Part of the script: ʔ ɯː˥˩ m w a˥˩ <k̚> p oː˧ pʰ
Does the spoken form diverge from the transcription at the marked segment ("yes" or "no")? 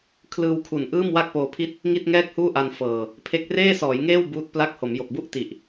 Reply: no